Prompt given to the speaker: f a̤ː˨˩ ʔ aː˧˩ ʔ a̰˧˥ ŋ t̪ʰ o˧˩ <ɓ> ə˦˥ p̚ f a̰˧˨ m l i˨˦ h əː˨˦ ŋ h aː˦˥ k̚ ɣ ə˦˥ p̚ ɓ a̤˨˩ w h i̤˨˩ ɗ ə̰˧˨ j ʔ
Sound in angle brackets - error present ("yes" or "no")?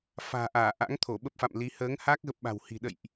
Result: no